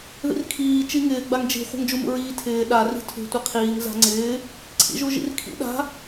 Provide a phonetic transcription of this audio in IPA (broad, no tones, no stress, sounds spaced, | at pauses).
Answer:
ð ḭ r kʰ iː t͡ʃ i ŋ ɪː ɡ͡b a ŋ d͡ʒ i̤ χʷ a̤ ŋ d͡ʒ u m ṵ ɹ iː tʰ ɪː ɗ a r i̤ tʰ ṳ tʷ i qʰ iː ŋ z a̤ ŋ͡ǀ ɪː | ǀʰ ḭ ʒ u ʒ ḭ r kʰ ḭ ɗ a̤